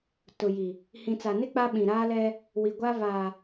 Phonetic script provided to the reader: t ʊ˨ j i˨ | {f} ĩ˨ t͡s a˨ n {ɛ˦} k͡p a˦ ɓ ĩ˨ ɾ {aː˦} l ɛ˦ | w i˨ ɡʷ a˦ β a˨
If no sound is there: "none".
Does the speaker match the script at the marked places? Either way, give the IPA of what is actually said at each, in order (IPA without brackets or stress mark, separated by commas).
h, ɪ˦, aː˦